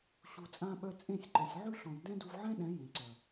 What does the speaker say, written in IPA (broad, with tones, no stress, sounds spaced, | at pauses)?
ɕ u˨ t͡sʼ ã˧ ɓ œ˧ t͡sʼ ẽ˦˨ sʲ ǃ e˨ sʲ ʕ ʉ˦ ɬ ɔ̃˨ j d ɛ̃˦ d u˧ v ʕ ɛ̃˦ ɗ ɛ̃˨˦ j ẽ˨ ǀ œ˨